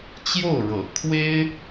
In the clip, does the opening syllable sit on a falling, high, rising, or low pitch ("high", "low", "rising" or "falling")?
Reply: falling